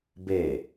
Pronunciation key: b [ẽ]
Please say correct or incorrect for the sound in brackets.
incorrect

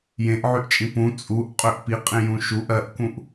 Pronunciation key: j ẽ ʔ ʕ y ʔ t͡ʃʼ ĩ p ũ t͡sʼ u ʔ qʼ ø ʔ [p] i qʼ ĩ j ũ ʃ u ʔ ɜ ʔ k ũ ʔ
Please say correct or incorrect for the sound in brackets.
correct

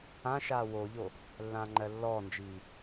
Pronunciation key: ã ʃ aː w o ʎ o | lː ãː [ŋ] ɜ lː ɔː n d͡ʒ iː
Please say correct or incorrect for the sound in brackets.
incorrect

